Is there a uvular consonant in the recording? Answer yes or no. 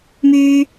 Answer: no